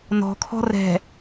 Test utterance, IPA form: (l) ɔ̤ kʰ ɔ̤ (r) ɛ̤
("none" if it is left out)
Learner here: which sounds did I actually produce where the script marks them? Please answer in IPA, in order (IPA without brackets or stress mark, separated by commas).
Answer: n, r